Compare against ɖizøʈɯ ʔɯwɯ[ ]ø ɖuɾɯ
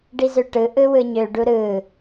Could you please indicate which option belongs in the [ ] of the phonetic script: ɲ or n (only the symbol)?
ɲ